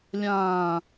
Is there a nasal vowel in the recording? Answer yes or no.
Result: yes